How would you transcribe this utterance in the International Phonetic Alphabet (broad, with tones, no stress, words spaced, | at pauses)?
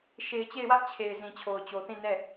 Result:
ʃe˨ɪ̯ t͡ɕe˦˨ɪ̯wä˦ʔ t͡ɕʰe˨ɪ̯ zĩ˨t͡ɕʰo˨ʊ̯t͡ɕo˨θĩ˦˨ nɛ˦˨